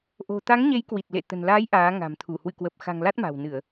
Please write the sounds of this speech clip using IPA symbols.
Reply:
ʔ o̤˨˩ t̪ a˨˦ ŋ ɲ e˨˦ j k w i˨˩ t̚ l ḛ˧˨ t̪ ə̤˨˩ n l aː˨˦ j ʔ aː˨˦ ŋ a̤˨˩ m t̪ʰ u˧˩ h w ɨ̰˧˨ k w ə˨˩ p̚ x a̤˨˩ ŋ l a˦˥ t̚ m a̤˨˩ w n ɨ˧˩˨ ə̯

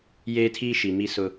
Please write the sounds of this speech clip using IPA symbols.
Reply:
j eː˦ tʰ iː˦ ʃ i˨ m i˦ s ʊ˦

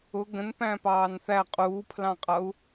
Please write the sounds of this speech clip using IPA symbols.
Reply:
ʊ ɡ ə̃ n p æ̃ p ɑː n θ æ qʼ uː pʰ l ɑ̃ qʼ ʌ u̯

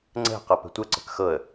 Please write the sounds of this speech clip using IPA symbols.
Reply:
ŋ͡ǀ ɛ̤ q ɤ p ɛ̤ tʷ ɘ ǀ ə̤ k x ɤ ə̯

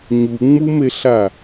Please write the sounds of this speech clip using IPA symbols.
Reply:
ɲ u ŋ͡m u m e ɬ a

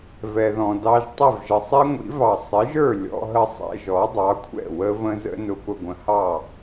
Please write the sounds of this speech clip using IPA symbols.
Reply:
v ɛ˩ ð ɔ̃˩ d ɑ˧ ʒ tˤ ɪ˥˩ v ʒ ə˩ sˤ ɛ˥ ŋʷ ḭ˩˥ v ɑ˩ sˤ ɪ˩˥ ʒ ə˞˥˩ lʲ ɔ̰˧ ɦ ə˧ sˤ ɛ̰˧ ʒ ɔ˩˥ dˤ ɑ˩˥ kʷʰ ɛ̰˥˩ w ə˥ v ə̃˥ z ə̰˥ n ʊ˧ p ʊ˧ ɡʷ ə̃˩˥ h ɑ˥˩

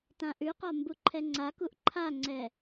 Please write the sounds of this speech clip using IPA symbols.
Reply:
t ã ʔ ʉ q ɒ m b u ǃʰ ɛ ŋ͡ǀ a k u ʔ ǃʰ a ŋ͡ǀ ɛ

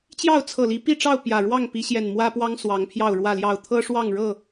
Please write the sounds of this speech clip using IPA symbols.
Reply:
t͡ɕ j ɑ˥˨ ʊ̯ t͡sʰ ɤ˨˩ l i˨˦ p i˥˨ ʈ͡ʂ ɑ˥˨ ʊ̯ p j ä˨˩ ɻ w ɑ˥˨ ŋ p i˨˦ ɕ j ɛ˨˩ n m w ä˦ p w ɑ˦ ŋ s w ɑ˨˦ ŋ pʰ j ɑ˥˨ ʊ̯ ɻ w ä˥˨ l j ɑ˥˨ ʊ̯ t̪ʰ ɤ˦ ʂ w ɑ˥˨ ŋ ɻ ɤ˥˨

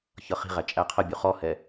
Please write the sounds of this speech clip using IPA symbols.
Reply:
ç ʌ χ i̤ ʁ æ t͡ʃʼ æ qʰ ə bʲ u χ ɔ h ɛ

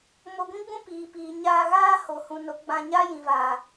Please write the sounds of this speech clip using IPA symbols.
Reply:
m o˧ ɡʷ ĩ˦ ɡ͡b ũ˦ p iː˨ p iː˨ ɲ aː˧ ɣ aː˦ h o˨ h ũ˨ n o˨˦ ɡ͡b ã˧ ɲ a˦ j ĩ˨ v aː˨

